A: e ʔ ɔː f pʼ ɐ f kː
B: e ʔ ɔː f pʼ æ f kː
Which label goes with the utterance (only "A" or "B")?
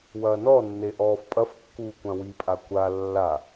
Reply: A